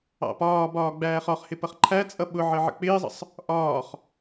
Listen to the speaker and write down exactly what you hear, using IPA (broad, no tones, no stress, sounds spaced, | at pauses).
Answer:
ɑ̰ p ɒː b ɒː ɡ͡b æː χ ɒ χ h ɪ p ʌ χ ǃʰ æ t͡sʼ ʌ ɓ ʊ ʕ ə ʕ ə̰ k͡p ɪː zˤ ə̰ sˤ | ʔ ɒː χ